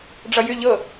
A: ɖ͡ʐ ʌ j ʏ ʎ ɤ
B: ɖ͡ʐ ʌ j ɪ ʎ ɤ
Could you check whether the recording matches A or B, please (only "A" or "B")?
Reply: A